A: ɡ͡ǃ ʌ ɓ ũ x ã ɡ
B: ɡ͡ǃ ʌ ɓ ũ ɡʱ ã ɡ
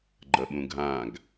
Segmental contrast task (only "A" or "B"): B